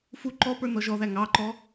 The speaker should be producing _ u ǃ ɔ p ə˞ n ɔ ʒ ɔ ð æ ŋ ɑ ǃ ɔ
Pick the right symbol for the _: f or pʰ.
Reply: f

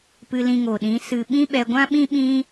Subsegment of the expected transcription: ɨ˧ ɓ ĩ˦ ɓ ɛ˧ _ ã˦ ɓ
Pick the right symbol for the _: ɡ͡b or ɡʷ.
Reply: ɡʷ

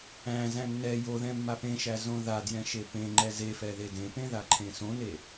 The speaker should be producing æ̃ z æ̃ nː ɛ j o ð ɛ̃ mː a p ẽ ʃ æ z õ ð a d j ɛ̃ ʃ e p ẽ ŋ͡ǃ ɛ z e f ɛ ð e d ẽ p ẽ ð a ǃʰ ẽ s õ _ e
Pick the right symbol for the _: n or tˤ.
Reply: n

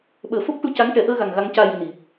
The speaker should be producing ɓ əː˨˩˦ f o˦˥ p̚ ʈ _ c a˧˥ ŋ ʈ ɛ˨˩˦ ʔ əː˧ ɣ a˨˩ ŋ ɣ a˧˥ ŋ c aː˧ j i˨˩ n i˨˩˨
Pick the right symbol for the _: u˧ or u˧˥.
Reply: u˧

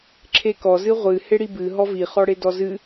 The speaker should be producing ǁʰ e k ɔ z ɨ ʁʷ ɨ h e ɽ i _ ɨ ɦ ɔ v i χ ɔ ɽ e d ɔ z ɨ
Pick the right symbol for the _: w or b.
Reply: b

